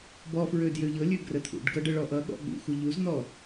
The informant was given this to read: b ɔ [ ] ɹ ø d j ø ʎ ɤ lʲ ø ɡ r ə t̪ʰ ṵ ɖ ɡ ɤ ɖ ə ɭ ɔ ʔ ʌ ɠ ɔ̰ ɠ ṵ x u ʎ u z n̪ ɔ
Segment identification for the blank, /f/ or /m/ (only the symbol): f